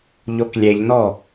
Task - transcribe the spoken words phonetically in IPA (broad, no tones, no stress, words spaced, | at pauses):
ʎoklʲeʎnɔ